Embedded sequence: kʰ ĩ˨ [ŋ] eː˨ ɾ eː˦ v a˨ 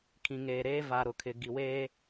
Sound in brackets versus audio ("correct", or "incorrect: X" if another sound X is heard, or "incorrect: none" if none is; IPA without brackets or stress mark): correct